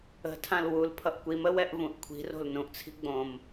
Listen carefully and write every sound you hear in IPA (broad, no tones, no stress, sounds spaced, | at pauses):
ə̤ tʰ ã l w u l pʰ ʌ ʔ kʷ i m ə w ɛ ʔ v ũ ʔ kʷʰ i̤ r o̤ l n ũ ʔ t͡sʰ i̤ ɡ͡b õ m